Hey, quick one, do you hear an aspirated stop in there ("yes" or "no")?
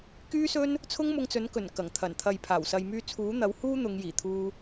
yes